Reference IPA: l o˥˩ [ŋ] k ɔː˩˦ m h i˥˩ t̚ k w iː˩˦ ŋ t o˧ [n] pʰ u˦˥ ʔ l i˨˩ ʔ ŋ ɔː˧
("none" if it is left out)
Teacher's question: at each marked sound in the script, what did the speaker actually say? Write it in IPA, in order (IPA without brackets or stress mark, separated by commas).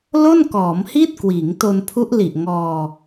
n, n